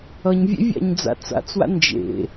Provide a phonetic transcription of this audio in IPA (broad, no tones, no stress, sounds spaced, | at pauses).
ʌ ɲ vʲ ḛ vʲ a̰ ɲ d͡z a̰ t͡s a̰ t͡s w a̰ n d͡ʒ ḛ